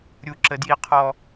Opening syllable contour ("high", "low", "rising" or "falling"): low